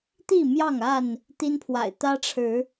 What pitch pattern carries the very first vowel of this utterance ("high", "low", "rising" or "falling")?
falling